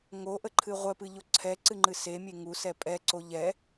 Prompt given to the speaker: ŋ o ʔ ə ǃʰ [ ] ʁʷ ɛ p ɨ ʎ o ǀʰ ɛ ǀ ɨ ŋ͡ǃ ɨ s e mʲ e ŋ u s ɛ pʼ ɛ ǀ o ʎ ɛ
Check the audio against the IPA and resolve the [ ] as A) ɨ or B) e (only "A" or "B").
A